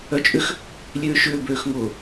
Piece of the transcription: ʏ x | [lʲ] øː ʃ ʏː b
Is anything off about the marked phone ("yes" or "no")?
no